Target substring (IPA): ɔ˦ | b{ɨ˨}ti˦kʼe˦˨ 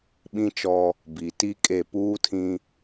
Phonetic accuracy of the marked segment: incorrect: i˨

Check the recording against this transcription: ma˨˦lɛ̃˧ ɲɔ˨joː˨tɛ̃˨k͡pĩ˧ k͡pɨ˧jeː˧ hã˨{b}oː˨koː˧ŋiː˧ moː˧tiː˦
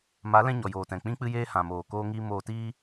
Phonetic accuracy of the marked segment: incorrect: m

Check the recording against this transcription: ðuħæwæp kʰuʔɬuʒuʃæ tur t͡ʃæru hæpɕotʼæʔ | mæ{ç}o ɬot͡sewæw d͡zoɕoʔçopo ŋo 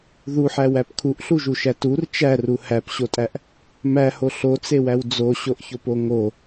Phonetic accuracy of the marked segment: incorrect: h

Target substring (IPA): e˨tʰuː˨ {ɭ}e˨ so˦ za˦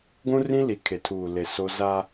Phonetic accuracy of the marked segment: incorrect: l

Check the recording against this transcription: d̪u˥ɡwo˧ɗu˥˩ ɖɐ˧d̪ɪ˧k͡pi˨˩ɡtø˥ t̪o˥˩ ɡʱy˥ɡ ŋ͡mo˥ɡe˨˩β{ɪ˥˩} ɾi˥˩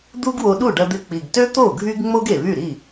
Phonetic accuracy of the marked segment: incorrect: y˥˩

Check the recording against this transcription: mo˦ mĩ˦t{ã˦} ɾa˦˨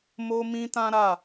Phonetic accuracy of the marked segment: correct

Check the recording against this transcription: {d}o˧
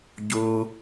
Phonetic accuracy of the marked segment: incorrect: ɟ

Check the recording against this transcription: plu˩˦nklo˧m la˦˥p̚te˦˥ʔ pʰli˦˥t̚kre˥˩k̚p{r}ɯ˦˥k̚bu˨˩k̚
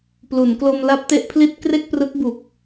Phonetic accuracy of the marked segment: correct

